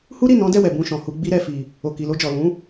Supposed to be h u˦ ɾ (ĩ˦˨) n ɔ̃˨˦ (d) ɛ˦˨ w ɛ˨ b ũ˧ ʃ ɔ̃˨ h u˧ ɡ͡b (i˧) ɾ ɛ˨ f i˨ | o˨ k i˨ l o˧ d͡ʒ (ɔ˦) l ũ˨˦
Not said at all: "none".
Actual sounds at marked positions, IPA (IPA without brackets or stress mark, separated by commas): i˦˨, d, i˧, ɔ˨